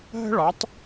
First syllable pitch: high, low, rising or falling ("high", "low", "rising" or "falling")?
high